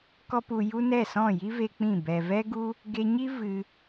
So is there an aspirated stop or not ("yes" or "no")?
no